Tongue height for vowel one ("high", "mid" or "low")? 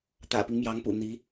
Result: low